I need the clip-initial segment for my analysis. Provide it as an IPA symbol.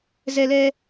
z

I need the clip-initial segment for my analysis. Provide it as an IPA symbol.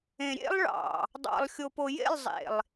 ẽ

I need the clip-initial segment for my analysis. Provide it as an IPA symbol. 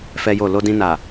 f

